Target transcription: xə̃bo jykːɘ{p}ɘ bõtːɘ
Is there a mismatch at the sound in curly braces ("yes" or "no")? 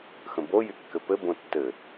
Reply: no